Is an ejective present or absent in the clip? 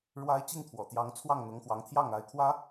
absent